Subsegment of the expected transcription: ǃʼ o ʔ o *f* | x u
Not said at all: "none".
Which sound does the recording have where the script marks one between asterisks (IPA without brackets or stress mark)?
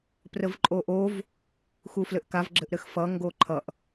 v